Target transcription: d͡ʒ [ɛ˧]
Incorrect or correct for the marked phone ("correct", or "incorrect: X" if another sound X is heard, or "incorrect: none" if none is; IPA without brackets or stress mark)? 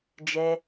correct